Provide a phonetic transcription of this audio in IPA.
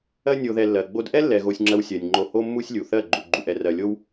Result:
ɜ˦ nʲ o˧ ð ɛ˧ lː ɜ˨ ɡ͡b o˧ d ʔ ɛ˦ lː ɛ˧ ɣ o˧ sʲ ŋ͡ǁ ɜ˧ w sʲ ɜ˨ nʲ ŋ͡ǃ o˧ h o˦ mː u˦ sʲ lʲ u˨ θ ɜ˦˨ ɡ͡ǃ u˨ ɡ͡ǃ u˨ ʔ ɛ˨ r ɜ˨ lʲ o˦ w

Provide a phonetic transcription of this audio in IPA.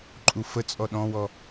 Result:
ǃʼ u f ə t͡sʼ ɔ ɗ ɔ̃ w ɔ

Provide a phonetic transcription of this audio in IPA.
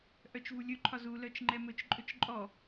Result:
ʔ œ t͡ʃ v u lʲ ɵ ǃʰ ɒ z u l œ t͡ʃ ŋ͡ǃ ɛ m ɵ t͡ʃ ǃʼ ɵ t͡ʃ ǃʼ ɔ

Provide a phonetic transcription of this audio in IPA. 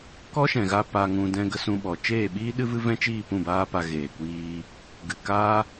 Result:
k ɔ˦ ʃ ɛ̃˨ ɣ a˧ p a˧ ŋ ũ˧ d ɛ̃˧ ɡ ə˧ s ũ˧ ɓ ɔ˨ t͡ʃ eː˦˨ ɓ iː˦ ɗ ɨ˦ v ɨ˦ v ɛ̃˦ t͡ʃ iː˦˨ p ũ˦˨ b aː˦ p a˧ ɣ eː˨ kʷ iː˧ | ɡ ɨ˨ k aː˦

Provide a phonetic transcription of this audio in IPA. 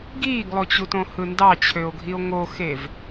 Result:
ɡ iː ɡ lˠ o t͡ɕ u t õ h ɯ n d ɑ t͡ɕʰ ø o̯ ɡʱ i o̯ ŋ o x e v

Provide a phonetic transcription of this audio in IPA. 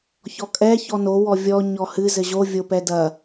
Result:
ç ɔ kʼ ɛ ç ɔ n o w ɔ vʲ ɔ ɲ ɔ h ɨ z ɘ ʑ o vʲ o p ɛ d ɐ

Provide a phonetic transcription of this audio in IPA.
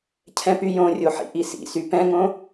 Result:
cʰ ɛ̃ p y j õ rʲ o ħ ḭ ʔ i s ḭ s y p ɛ̃ ŋ õ

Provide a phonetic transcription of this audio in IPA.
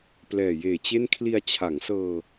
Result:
p l ɛː˨˩ j eː˨˩ t͡ɕ e˥˩ n kʰ l i˧ a̯ t͡ɕʰ a˩˦ ŋ s ɤː˧

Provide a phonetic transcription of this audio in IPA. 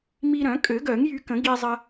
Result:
m i˧ ɾ œ̃˨˩˦ kʼ ø˨˩˦ ɡ œ˨˩˦ ŋ j y˧ k ə̃˨˩˦ ɡ iː˧ zˤ ə˧

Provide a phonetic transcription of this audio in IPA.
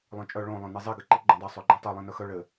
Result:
lˠ œ̃ t͡ʃʼ œ ɭ õ lˠ œ̃ n i zˤ i ɡ ɘ ǃ i ɡ͡ǃ õ dˤ o sˤ o ɡ͡ǃ ĩ tˤ ɘ lˠ ĩ n œ x œ ɭ ɘ

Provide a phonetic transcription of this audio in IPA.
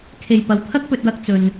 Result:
kʰ e˨ j p ɐ˨˧ w t̪ʰ ɐ˥ k̚ p ɵ˧ t̚ w ɐ˧ k̚ t͡s ɵ˨ n

